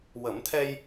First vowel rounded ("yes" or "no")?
no